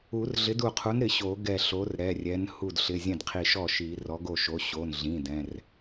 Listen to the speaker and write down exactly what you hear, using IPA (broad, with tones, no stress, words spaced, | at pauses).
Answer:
u˨˩˦rɮɪ˨˥du˧˩qʰu˨˥n ɾɪ˨˩˦ɕo˨˩˦ɡɛ˧˩ ɬo˨˥rɾɛ˩˧˩rʲɛ˨˥n hu˧˩dɬɪ˩˧˩ zʲɛ̃˥˩dqʰi˧˩ʃɔ˥˩ʃi˨˩˦ rɔ˨˥ɡo˥˩ʃo˨˥ ɕo˩˧˩nɮĩ˩˧˩ dɛ̃˩˧˩r